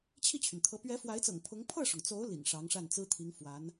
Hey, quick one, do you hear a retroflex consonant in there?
yes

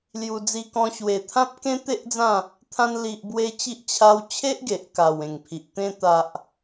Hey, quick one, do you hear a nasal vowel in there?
yes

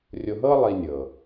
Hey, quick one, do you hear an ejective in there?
no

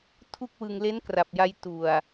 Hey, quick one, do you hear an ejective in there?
no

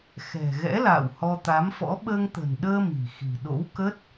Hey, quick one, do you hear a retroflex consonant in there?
no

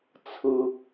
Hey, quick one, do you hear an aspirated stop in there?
yes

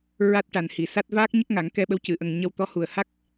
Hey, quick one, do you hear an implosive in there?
yes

